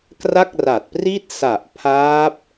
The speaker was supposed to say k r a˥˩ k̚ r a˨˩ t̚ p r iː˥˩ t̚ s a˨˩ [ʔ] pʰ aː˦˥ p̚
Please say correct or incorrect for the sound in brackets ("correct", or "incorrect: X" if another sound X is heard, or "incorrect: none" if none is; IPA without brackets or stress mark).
correct